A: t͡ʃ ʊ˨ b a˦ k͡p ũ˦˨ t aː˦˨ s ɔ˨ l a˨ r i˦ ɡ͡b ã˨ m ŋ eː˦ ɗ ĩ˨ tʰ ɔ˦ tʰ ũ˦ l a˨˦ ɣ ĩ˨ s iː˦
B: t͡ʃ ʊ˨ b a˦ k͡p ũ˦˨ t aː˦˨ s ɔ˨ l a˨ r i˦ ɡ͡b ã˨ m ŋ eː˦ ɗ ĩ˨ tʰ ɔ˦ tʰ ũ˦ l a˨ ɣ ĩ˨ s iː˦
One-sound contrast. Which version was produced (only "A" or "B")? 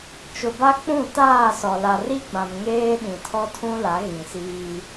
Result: A